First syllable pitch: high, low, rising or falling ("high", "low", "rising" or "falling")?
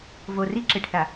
low